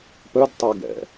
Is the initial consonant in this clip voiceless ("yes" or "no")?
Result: yes